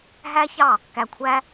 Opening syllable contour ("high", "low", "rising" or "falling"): high